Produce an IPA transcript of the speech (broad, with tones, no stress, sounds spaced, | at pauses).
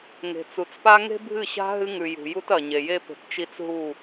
ŋ e̤˨ t͡s u˨ t͡s p a˦ ŋ e̤˦ bʱ ɨ˦˨ ɕ a̤˦ ɦ ɨ˦ ŋ ʉ˨ j ṳ˨ j u˦ t ɐ˨ ɲ e˨ j e˦ p e̤˨ t t͡ʃ i˦ t͡s ɦ u˦˨